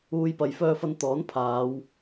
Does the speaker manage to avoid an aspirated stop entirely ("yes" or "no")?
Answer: no